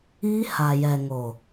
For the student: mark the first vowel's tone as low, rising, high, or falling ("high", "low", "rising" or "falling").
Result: high